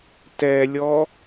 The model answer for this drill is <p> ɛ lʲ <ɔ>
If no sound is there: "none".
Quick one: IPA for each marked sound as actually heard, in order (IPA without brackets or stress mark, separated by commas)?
t, ɔ